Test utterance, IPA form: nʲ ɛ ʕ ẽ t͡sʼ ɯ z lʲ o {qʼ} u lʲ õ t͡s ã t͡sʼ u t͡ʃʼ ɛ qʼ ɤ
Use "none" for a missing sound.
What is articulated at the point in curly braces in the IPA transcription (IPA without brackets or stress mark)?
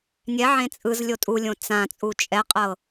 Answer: tʼ